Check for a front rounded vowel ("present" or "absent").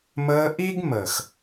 absent